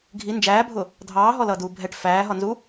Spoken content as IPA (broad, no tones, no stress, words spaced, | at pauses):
ɡʱi nd͡ʒæːbʱʊ | dʱɑːɦɔlʌːduː bʱɛʈ fæːɦɒnzu